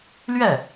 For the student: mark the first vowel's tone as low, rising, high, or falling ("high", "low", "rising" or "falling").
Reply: falling